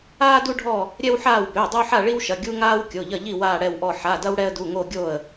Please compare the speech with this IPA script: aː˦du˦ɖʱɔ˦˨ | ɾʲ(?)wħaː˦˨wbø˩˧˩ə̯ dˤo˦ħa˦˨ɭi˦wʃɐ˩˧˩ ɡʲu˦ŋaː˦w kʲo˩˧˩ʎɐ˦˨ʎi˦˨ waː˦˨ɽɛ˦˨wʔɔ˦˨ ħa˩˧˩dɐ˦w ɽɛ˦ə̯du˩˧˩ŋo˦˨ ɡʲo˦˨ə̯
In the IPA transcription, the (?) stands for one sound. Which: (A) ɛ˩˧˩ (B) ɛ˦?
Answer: B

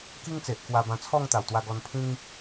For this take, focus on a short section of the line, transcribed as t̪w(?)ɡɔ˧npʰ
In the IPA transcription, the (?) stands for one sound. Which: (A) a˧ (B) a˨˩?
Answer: A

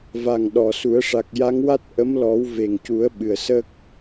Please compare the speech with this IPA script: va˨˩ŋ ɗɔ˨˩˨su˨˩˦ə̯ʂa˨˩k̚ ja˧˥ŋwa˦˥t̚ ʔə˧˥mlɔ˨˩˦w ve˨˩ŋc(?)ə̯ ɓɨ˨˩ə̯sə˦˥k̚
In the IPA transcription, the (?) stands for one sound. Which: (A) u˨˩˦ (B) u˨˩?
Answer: A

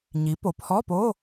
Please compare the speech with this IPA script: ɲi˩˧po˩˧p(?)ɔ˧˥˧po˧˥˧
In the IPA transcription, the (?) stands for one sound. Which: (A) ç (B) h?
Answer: B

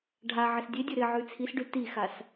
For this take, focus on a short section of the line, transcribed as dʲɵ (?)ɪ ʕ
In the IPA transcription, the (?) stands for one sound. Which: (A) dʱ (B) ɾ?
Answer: B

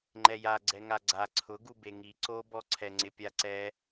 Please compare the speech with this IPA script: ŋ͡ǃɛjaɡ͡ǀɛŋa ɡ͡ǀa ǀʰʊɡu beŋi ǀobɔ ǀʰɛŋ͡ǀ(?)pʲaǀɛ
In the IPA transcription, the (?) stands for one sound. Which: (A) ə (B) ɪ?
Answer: B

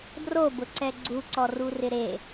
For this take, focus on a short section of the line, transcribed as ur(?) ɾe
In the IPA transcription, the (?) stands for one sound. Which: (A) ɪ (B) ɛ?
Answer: A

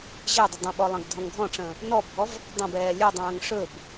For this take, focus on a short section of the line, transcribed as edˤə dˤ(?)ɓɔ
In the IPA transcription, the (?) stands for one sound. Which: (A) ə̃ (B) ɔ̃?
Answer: A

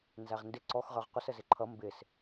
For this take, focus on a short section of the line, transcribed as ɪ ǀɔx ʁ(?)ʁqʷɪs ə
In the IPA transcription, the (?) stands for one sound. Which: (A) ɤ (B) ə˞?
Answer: B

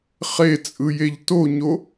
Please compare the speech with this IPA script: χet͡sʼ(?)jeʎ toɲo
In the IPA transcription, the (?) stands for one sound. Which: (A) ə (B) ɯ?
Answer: B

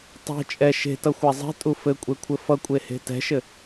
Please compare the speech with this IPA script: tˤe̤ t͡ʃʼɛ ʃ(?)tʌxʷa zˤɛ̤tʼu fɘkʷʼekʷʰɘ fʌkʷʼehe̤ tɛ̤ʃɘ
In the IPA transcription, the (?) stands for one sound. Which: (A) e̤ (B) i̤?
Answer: A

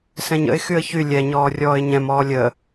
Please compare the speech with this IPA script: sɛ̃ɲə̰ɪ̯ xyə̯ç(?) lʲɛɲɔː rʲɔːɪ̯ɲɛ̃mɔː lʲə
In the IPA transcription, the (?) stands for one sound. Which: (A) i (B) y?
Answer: B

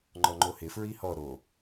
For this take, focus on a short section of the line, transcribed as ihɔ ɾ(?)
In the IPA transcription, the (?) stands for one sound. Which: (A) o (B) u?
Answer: A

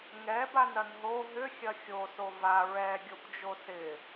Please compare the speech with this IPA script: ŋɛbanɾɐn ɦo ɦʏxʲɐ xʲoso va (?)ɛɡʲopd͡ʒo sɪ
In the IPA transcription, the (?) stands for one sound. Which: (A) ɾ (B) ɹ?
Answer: B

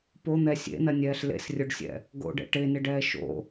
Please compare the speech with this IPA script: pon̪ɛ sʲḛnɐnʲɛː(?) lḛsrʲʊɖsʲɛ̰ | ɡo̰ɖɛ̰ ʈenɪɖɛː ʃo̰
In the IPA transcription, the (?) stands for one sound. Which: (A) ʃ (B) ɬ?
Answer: B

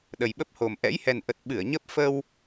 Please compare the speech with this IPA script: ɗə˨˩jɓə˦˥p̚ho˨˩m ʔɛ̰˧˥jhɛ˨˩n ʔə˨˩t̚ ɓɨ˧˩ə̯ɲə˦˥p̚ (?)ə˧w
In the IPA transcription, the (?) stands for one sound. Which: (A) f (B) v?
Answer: A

